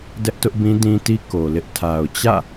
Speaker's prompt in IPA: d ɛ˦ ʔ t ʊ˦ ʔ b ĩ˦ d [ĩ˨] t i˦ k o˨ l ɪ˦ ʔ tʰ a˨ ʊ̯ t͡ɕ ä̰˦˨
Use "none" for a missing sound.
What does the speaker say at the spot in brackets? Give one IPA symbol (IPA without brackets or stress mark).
ĩ˦